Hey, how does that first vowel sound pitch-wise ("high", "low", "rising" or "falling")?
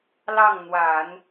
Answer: falling